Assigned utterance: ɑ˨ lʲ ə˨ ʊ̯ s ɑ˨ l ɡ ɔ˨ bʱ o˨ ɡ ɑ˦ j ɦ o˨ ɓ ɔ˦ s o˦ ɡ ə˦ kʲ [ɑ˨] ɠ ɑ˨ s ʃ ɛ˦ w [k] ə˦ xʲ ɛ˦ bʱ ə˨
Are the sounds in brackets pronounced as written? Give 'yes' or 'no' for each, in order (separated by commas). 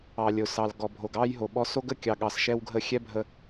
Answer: yes, no